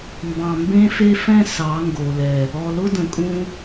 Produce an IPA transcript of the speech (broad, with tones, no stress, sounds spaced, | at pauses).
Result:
m b ɑ̃˨ m b ẽ˦ f e˦ f ɛ̃˦ s ɑ˨˦ ŋ ɡ o˨ l ɛ˨ | ɔ˨ l ʊ˦ d ə̃˨ kʼ ũ˦